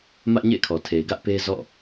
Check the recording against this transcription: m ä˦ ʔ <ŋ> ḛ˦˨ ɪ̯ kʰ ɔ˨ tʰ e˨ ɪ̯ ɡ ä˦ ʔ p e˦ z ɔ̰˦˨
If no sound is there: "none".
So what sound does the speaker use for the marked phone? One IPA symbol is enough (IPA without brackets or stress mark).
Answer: ɲ